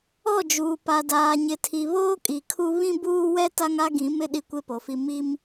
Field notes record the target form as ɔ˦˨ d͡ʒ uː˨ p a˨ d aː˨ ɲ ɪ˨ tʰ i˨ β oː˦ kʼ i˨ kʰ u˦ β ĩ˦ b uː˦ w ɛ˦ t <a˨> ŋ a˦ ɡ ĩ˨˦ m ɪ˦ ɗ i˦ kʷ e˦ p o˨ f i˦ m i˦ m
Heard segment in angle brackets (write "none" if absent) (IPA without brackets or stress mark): a˦